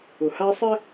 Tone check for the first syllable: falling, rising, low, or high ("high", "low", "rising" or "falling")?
low